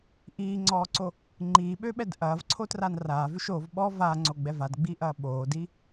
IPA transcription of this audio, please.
ʔ iː ŋ͡ǀ ɔː ǀ o | ŋ͡ǃ iː ɓ ø ɓ ɛ d ʔ ɐː v ǀʰ o t r a n r aː v ʉ ʃ o v ɓ ɔ v a ŋ͡ǀ o ɡ͡b ɛ v a d ɡ͡b iː ʔ ɐː ɓ oː d i

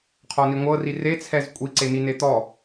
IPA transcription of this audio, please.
qʰ ɔ n i ŋʷ ɤ r i r e t͡sʰ ɛ z kʷʼ i ǀ e n i n e t̪ ɔ

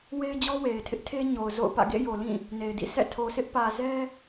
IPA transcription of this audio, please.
w e˦ ɪ̯ d͡ʑ ɔ˦ w e˨ ɪ̯ tʰ ɪ˦ ʔ tʰ e˦ ɲ o˨ ʊ̯ z o̰˦˨ ʊ̯ p ä̰˦˨ ɡ ḛ˦˨ j o˨ l ĩ˦˨ | n e˨ ɪ̯ d ḭ˦˨ sʰ ɛ̰˦˨ tʰ o˨ sʰ ɪ˦ ʔ p ä˨ z ɛ˦

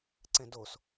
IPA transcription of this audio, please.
ǀ ɛ̃ d o s

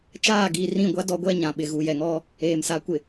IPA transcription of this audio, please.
t͡ʃ aː˦˨ ɡ iː˨ r ĩ˦˨ ɡʷ a˦ d ɔ˦ ɡʷ ɛ˦ ɲ ã˨ ɓ ɪ˨ ɣ u˨ j ɛ˨ ŋ ɔ˦ | eː˨ m s a˨˦ kʷ ɪ˨

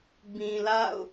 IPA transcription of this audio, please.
b ĩ˨ l a̰˦˨ ʊ̯

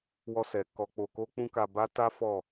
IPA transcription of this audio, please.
w ɔ˧ s ɛ˨ k ɔ˧ k͡p o˧ k o˦ k͡p ũ˦ k a˧ b a˦ t a˦ f ɔ˦˨

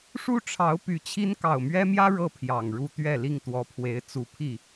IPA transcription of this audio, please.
ʂ u˦ ʈ͡ʂʰ ɑ˨˦ ʊ̯ p y˨˦ t͡ɕʰ i˦ n k ɑ˨˩ ʊ̯ m ɥ ɛ˦ m j ä˦ ɻ ɤ˦ pʰ j ɑ˨˩ ŋ ɻ u˥˨ t̪ ɥ ɛ˥˨ l i˥˨ ŋ t̪ w ɔ˨˦ pʰ w e˨˦ ɪ̯ t͡s u˨˦ pʰ i˥˨

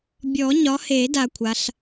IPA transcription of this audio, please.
bʲ ɔ˨˩˦ ɲ ɒ˨˦ h e˨˩˦ d a˦ kʷʰ a˨˦ ɬ

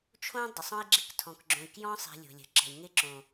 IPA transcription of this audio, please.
t͡ʃʰ õ˦ dˤ ə˨ sˤ ɔ̃˦ i̯ ɡ͡ǁ ɪ˦˨ k tʰ ɔ̃˨ k ɡ͡ǁ õ˨ i̯ k j ɔ̃˦ sˤ i̤˨ lʲ o̤˨ lʲ ə̤˨ ǁ ə̤˨ i̯ ŋ ɪ˦˨ ǁ õ˨

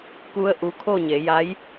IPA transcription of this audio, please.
k u˧ ə̯ ʔ u˧ kʰ o˥˨ ɲ e˩˧ j a˧˥ j

